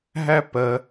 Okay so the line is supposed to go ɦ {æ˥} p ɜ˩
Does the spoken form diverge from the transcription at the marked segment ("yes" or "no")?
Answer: no